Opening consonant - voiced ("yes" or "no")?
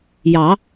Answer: yes